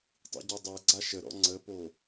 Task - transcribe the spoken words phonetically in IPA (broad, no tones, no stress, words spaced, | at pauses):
tˤḭɟɔdˤɛɡ͡ǀa ʃəɾɔ̰ ŋ͡ǀəpo